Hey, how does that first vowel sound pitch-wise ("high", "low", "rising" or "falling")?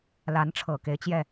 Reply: rising